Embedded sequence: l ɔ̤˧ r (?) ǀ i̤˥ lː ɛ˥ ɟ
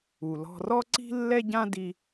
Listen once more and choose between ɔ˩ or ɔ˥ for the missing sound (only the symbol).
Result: ɔ˥